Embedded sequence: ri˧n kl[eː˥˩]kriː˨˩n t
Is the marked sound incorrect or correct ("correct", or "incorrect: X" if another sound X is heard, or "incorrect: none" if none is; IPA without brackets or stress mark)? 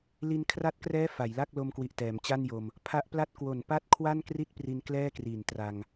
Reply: incorrect: ɛː˥˩